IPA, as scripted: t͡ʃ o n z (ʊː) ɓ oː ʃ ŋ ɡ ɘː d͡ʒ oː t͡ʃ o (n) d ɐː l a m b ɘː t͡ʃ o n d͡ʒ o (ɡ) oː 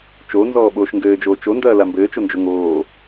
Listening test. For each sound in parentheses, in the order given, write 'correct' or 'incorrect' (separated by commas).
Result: incorrect, correct, incorrect